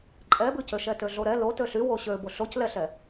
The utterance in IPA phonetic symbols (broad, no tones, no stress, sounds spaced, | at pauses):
ǃʼ ɛ b ʉ c ø ʃ ɛ t ø ɮ o ɾ ɛ l o t ø ɬ y w o ɕ ø b o ɬ o c l ɛ ɬ ɛ